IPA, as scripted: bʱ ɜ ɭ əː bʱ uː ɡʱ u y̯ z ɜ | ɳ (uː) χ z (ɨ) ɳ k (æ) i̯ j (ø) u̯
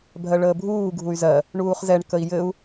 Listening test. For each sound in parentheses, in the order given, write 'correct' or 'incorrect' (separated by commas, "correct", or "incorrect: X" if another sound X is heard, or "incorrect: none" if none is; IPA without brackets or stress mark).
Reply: correct, incorrect: ɛ, incorrect: ə, incorrect: ɘ